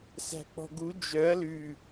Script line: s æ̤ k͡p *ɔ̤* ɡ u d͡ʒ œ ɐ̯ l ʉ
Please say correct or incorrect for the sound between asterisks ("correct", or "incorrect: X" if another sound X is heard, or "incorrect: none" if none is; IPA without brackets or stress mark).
correct